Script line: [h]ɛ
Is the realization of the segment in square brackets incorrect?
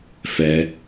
yes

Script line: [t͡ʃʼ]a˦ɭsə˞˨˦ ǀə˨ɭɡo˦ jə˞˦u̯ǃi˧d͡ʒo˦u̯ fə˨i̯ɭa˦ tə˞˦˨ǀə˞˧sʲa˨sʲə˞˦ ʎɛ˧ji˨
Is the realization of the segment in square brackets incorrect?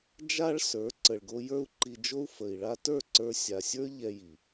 yes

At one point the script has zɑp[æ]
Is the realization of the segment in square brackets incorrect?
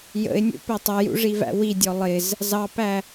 no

